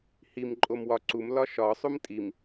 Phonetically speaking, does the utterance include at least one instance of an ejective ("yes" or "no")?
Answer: yes